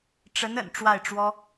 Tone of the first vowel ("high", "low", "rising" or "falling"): rising